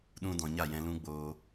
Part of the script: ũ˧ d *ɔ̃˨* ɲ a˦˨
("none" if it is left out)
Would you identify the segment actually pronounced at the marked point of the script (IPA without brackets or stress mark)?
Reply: ɔ̃˨